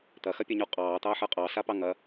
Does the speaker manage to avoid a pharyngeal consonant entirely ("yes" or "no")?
no